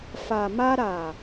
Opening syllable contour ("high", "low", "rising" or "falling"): low